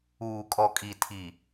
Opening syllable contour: low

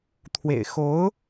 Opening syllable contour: low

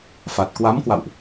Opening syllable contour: low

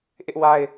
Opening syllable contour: high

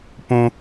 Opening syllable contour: high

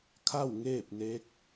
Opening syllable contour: falling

